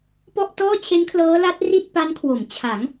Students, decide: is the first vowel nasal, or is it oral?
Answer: oral